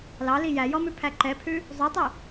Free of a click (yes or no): no